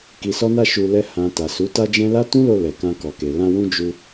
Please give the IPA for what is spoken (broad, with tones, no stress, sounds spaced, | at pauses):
k i˨ s ɔ˧ n a˧ ʃ u˨ l ɛ˧ h ã˨ t a˨ s u˨˦ t a˦ d͡ʒ ɛ̃˦ l a˦ t ũ˦ l o˧ l ɛ˨ k ã˧ k ɔ˨ k e˨ l ã˧ w ũ˧ d͡ʒ u˧